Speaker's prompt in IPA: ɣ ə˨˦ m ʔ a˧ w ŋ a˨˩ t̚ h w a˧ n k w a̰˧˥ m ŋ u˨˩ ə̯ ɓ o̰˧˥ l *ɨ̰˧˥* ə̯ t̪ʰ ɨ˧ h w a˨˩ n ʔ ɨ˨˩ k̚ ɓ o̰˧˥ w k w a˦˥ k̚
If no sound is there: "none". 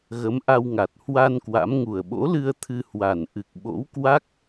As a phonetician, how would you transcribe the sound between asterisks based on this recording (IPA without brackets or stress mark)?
ɨ˧